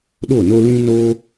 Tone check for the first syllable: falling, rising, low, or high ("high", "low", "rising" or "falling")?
falling